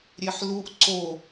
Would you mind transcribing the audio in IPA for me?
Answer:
ɾʲeħluʔ ǀo

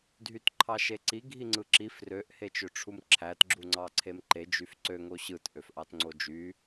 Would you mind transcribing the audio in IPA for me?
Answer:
dʱytǃʰɑʃeǀi ɡʱiŋ͡ǀɯǁi frøʔ het͡ʃøʈ͡ʂʰumǁʰæt ɡ͡ǁuŋ͡ǀɑǀʰemǃe d͡ʒyfǀø ŋoɕɯt ʔøfʔɑtŋ͡ǀod͡ʒy

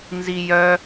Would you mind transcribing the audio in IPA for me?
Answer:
nzijœ

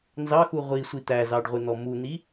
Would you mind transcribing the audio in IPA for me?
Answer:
nzɑxu ʁʷi sʷit̪æzɑɖ ʁʷɪn̪ɔmun̪i

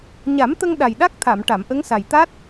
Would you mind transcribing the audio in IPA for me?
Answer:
ɲa˨˩˦mt̪ə˧ŋ ɗa˨˩jɗa˦˥k̚t̪ʰa˨˩˨m ʈa˨˩˨mʔə˧˥ŋsa˨˩j t̪a˦˥t̚

